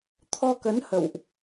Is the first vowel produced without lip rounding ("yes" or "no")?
no